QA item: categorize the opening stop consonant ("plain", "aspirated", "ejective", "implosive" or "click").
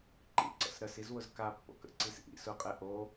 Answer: click